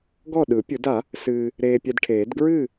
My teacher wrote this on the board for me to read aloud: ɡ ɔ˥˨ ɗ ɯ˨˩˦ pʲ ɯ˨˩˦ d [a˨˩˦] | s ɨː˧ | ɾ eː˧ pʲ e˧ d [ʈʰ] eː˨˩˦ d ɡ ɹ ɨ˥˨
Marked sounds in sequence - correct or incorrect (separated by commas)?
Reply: correct, correct